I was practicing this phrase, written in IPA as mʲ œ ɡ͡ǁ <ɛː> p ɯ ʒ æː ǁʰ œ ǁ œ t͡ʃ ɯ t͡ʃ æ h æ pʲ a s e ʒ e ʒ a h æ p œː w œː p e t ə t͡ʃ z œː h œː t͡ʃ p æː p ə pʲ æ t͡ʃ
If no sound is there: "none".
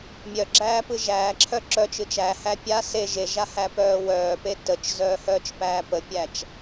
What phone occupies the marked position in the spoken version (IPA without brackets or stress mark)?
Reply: æː